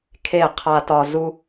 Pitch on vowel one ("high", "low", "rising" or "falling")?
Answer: falling